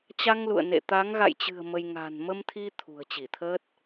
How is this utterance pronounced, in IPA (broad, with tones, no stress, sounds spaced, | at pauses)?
t͡ɕ a˧ ŋ l ṵ˧˨ ə̯ n ḛ˧˨ t̪ a˨˦ ŋ ɣ a̰˧˨ j t͡ɕ ɨ̤˨˩ ə̯ m ə˧ j ŋ a̤˨˩ n m ə˧ m t̪ʰ i˧ t̪ʰ ṳ˨˩ ə̯ t͡ɕ i˧˩ t̪ʰ əː˦˥ t̚